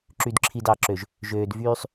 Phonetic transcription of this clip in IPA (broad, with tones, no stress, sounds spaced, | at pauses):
ǁ y˨ d ǁʰ i˨ d ɑ˨ ǁ ø˨ ʒ | ʒ øː˨ d v yː˦ sˤ